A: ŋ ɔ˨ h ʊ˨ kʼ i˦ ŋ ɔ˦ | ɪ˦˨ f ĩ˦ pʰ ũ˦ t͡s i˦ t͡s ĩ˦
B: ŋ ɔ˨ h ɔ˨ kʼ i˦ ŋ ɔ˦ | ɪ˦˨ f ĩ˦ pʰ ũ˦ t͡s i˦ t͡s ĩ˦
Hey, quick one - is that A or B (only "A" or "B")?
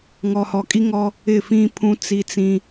B